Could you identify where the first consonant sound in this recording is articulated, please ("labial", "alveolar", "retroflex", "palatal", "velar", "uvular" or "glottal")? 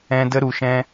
alveolar